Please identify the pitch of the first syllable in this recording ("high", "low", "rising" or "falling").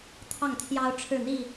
falling